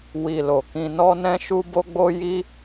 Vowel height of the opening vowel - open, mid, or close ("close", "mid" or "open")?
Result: close